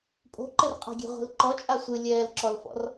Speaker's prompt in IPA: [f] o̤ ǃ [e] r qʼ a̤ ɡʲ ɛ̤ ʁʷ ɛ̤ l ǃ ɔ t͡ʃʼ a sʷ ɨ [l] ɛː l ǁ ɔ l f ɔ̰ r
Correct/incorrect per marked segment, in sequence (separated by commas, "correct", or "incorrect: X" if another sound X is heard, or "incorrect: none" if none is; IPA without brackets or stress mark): incorrect: pʼ, incorrect: ɘ, incorrect: lʲ